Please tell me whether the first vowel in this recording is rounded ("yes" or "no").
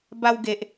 no